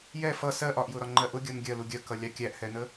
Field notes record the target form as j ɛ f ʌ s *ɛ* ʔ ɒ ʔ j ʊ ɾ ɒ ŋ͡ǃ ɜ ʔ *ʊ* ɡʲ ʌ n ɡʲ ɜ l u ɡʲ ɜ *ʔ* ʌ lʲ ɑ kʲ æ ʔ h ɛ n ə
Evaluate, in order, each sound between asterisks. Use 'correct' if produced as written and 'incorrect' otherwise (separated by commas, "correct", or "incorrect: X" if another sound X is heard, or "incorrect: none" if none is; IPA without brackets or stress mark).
incorrect: ɜ, correct, incorrect: k